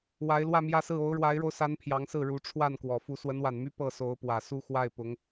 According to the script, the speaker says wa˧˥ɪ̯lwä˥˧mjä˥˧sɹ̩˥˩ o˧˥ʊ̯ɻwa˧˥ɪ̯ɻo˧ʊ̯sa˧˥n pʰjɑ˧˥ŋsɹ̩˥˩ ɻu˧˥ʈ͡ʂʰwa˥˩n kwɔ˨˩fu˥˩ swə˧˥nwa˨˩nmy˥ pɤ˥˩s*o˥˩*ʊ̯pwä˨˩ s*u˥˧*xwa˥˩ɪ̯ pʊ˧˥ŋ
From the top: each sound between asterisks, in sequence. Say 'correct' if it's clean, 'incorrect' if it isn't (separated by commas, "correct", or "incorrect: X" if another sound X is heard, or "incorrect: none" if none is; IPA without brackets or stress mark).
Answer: incorrect: o˧˥, correct